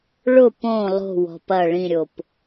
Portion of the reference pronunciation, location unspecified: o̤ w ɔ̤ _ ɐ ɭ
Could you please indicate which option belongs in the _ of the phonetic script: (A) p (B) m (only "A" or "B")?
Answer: A